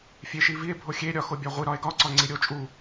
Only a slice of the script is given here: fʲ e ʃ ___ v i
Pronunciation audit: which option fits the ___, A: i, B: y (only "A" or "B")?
A